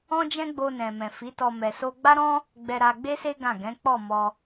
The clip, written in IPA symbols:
ɔ̃˦ d͡ʒ ɛ̃˦ ɡ͡b o˧ n ɛ̃˨ m ɛ̃˨ f i˨˦ t ɔ˧ m ɛ˨ s o˧ ɡ͡b a˦ ɾ ɔ̃˦ | ɡ͡b ɛ˧ ɾ a˧ ɡ͡b e˦ s e˦ ɡ ã˦˨ ɡ ɛ̃˨˦ k͡p ɔ˦˨ m ɔ˧

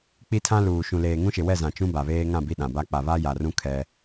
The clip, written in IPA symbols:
k͡p i˦ tʰ ã˦ l uː˨ ʃ ũ˨ l eː˨ ŋ ũ˦ ʃ ɪ˨ w ɛ˦˨ z ã˨ t͡ʃ ũ˦ b a˨ β eː˦ ŋ ã˦˨ b i˦ ɗ ã˨ b a˦ k͡p a˨ β a˦ j a˨ r ũ˦ kʰ ɛ˦

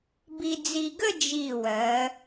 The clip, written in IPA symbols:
b i˧ d͡z i˧ ɡ ə˥˧ d͡ʒ i˧˩ w ɜ˩˧

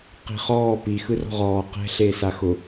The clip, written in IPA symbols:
q i̤ χ ɔː p i x ɯ r ɔ̤ ʁ ɔː q ɛ̤ ɬ e s a x ʊ

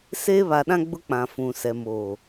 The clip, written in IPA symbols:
s eː˦ β a˨ ɗ ã˦ ɡ͡b ʊ˦ k͡p ã˨ f ũ˨ s ɛ˨ m oː˨

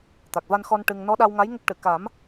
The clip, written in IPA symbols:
t̪ a˨˩ k̚ v a˧ n x ɔ˧ n ʈ ɨ˧ ŋ n ɔ˧˥ ɗ a˧ w ŋ a˧˥ j ŋ ə˦˥ k̚ ʈ ɨ˨˩˨ k a˨˩˦ m

